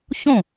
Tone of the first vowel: falling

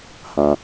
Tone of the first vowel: low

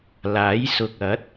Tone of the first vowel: rising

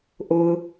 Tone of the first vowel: low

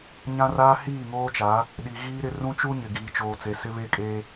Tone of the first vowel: high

